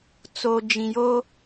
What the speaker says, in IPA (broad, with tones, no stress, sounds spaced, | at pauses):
t͡s o˨ d͡ʒ ĩ˨ j o˦